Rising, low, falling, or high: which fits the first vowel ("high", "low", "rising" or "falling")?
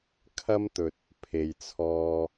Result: high